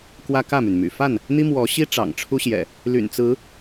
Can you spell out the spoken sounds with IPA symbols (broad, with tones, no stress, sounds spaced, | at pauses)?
k w ä˦ k ä˥˨ m y˩ n m y̰˨˩ f a˥˨ n | n̪ i˦ m w ɔ˨˦ ɕ i˦ ʈ͡ʂ ɑ̰˨˩ ŋ ʈ͡ʂʰ u˦ ɕ j ɛ̰˨˩ | l y̰˨˩ n t͡s ɹ̩˨˦